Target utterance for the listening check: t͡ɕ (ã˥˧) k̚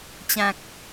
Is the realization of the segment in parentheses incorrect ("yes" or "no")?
yes